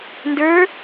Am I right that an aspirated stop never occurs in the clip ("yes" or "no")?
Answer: yes